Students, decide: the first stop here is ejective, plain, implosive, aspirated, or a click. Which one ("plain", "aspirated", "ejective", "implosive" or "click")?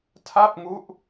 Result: aspirated